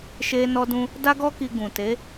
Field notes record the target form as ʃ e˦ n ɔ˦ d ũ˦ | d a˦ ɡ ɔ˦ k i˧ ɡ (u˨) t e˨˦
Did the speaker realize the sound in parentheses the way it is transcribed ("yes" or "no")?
no